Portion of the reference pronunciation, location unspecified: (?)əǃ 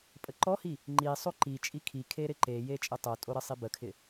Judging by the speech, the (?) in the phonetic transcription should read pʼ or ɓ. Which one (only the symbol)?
pʼ